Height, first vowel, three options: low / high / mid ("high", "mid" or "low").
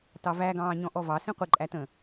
low